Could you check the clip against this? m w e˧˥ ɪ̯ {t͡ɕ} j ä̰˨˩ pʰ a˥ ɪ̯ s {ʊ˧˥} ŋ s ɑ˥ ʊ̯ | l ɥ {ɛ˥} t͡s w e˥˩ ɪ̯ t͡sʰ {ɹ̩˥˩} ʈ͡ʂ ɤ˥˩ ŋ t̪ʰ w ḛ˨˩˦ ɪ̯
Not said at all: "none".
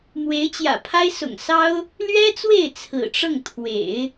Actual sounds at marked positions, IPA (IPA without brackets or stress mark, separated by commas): t͡ɕ, ʊ̰˨˩, ɛ˥, ɹ̩˨˩